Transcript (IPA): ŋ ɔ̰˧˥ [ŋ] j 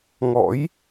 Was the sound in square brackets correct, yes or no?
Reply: no